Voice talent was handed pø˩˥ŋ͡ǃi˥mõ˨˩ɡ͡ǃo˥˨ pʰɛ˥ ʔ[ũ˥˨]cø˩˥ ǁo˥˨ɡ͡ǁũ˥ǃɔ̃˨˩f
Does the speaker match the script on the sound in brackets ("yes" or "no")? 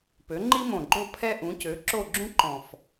no